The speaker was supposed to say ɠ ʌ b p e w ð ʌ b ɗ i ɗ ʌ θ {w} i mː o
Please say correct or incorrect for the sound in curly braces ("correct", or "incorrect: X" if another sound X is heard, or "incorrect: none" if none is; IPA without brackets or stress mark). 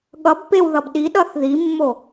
incorrect: ð